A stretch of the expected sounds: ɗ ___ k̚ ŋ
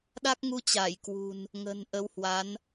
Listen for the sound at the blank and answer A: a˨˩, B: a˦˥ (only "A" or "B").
B